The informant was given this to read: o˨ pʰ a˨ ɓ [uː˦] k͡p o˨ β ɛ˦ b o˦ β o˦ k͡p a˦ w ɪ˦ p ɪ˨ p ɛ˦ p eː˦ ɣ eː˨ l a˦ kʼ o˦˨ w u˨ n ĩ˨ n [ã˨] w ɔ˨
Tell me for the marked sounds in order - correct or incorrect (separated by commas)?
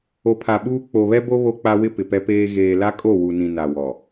correct, incorrect